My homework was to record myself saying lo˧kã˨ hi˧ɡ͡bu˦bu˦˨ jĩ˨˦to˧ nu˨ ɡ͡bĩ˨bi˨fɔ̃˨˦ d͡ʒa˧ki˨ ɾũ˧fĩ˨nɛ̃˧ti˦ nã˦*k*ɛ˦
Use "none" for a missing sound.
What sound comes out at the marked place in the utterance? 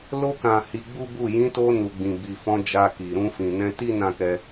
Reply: k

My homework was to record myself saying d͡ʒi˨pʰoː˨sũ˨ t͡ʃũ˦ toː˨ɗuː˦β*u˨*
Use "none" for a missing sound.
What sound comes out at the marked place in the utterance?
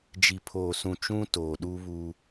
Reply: u˦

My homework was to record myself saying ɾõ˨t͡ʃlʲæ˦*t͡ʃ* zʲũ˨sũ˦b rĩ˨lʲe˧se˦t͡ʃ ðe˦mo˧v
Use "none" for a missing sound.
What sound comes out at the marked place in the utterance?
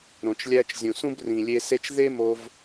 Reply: t͡ʃ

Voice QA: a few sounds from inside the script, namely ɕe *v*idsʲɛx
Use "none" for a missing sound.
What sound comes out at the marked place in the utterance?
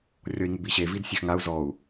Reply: v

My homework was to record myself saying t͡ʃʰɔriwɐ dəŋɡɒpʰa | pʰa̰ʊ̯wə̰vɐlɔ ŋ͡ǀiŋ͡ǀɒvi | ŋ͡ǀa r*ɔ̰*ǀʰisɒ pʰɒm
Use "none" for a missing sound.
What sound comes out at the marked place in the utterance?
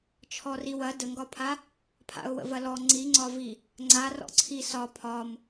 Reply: ɔ̰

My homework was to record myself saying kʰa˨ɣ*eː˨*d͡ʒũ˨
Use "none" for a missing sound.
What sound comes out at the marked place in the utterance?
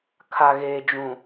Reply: eː˨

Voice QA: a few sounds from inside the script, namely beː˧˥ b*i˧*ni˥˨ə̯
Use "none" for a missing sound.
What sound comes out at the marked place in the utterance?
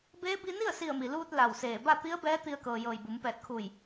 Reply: i˧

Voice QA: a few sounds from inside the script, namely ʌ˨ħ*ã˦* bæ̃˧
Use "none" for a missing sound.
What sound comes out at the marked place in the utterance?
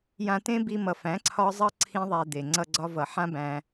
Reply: ã˦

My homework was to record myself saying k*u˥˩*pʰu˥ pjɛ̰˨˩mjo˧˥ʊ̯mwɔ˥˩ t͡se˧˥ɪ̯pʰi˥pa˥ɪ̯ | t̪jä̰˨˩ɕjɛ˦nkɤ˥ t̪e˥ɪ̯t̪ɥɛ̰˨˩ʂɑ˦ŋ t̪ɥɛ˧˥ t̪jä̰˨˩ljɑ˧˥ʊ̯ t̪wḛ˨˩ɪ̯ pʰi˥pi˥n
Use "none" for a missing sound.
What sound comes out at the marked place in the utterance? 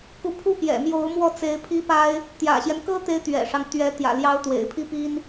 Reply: u˧˥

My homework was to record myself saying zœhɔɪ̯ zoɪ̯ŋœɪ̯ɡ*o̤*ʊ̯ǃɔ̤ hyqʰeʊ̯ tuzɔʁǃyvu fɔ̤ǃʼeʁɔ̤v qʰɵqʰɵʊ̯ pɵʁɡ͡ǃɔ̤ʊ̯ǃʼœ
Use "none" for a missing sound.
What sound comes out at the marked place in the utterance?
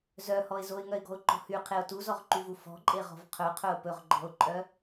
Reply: ɔ̤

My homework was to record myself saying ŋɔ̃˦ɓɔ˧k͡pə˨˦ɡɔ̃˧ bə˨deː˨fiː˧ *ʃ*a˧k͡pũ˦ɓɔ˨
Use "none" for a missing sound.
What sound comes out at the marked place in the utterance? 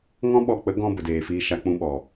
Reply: ʃ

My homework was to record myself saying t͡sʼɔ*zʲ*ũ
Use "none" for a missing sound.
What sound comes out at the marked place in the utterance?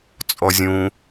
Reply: zʲ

